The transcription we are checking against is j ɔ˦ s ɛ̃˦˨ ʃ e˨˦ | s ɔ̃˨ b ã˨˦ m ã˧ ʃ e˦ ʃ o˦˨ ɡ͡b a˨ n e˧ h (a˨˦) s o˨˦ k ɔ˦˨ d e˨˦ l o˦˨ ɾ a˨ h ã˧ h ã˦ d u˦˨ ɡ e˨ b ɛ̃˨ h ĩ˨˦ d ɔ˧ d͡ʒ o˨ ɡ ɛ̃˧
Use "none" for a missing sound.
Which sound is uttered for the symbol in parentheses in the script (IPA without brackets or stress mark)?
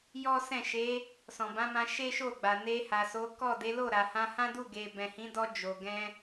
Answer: a˨